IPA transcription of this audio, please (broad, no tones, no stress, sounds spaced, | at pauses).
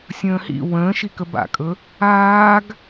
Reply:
sʲ ə̃ː h ḭ w ə̃ː ʃ i k ə b a̰ kʼ ɵ | aː ɡ